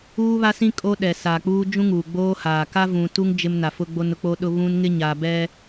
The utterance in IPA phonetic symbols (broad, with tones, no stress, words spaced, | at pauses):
uː˦βa˦sĩ˦ kʼo˦ɗɛ˨ sa˨k͡puː˦ d͡ʒũ˦ŋuː˨ɡ͡boː˦haː˨ ka˦vũ˨tu˦ŋ d͡ʒɪ˦mna˨fʊ˦ ɡ͡bo˦nʊ˦k͡po˦ɗʊ˦ βũ˦n ŋɪ˦ɲa˨bɛ˦